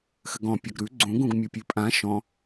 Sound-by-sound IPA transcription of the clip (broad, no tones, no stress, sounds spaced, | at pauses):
x ɘ ɡ ɔ̃ pʲ ʌ ɡ ɾ ʉ ɡ͡ǀ ũ ɡ ũ ɡ mʲ u pʲ ʉ pʼ ã ʃ ɔ̃